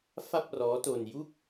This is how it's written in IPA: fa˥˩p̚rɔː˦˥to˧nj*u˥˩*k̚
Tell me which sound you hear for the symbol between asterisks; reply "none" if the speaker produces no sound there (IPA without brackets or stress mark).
u˥˩